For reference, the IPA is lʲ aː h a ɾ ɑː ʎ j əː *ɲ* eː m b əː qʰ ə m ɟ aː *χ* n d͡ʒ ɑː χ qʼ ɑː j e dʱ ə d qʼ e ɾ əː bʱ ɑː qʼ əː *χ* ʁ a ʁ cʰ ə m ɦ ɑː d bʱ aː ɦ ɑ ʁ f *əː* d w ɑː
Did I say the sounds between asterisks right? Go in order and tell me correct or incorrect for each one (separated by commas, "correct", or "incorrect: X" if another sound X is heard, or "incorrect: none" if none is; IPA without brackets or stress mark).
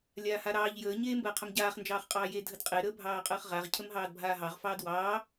correct, correct, correct, incorrect: ɑː